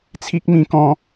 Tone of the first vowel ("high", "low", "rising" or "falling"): high